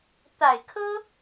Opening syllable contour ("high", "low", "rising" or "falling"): low